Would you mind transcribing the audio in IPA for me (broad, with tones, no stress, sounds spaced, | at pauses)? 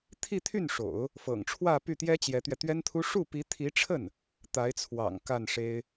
t̪ʰ i˥˧ t̪ʰ y˥˩ n ʂ o̰˨˩˦ ʊ̯ | f ɤ̰˨˩ ŋ ʈ͡ʂʰ w ä˥˧ p y˥˩ t̪ j ɛ˥ t͡ɕ j ɛ˧˥ t̪ ɥ ɛ˧ t̪ ɥ ɛ˥ n t̪ʰ u˥ ʂ u˥˩ p i˧˥ t̪ʰ i˧˥ ʈ͡ʂʰ ə˥˩ n | t̪ a˧˥ ɪ̯ t͡sʰ w ɑ̰˨˩ ŋ k a˥˩ n ʂ e˥ ɪ̯